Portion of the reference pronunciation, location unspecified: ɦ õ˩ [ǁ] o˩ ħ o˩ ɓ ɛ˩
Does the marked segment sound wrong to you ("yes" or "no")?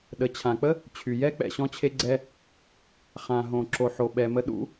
no